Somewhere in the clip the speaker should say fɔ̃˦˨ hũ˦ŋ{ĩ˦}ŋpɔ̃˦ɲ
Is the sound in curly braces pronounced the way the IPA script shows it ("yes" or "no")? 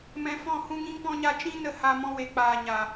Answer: yes